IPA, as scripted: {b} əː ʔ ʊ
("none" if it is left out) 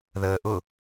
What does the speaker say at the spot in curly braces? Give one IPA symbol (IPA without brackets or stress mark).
ð